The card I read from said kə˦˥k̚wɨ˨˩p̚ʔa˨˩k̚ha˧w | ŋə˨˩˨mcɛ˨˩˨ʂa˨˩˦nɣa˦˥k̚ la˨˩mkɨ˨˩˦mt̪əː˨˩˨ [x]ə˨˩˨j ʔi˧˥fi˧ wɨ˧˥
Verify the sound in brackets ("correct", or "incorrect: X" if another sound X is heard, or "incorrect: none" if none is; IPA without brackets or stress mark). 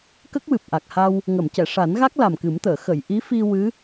correct